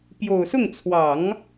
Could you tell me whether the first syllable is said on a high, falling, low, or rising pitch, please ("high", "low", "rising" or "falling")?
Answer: low